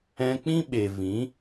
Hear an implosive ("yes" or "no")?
yes